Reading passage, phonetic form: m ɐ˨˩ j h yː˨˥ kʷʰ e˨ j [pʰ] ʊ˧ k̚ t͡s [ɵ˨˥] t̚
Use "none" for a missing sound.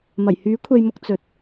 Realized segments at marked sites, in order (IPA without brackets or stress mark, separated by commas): m, ɵ˨˥